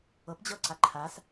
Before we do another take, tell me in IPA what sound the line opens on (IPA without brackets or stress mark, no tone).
ɤ